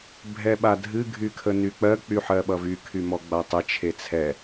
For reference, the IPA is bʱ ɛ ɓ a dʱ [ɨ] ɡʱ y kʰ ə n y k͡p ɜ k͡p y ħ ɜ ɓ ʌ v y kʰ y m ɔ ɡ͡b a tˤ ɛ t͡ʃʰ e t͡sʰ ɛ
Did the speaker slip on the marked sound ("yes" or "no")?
no